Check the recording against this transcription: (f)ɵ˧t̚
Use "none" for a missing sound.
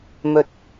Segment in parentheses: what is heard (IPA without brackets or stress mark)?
m